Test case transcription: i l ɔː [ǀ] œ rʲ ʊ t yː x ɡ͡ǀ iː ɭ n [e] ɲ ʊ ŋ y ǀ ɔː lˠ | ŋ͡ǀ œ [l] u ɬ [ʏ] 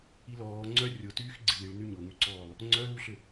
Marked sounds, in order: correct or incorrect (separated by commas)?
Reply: incorrect, incorrect, correct, correct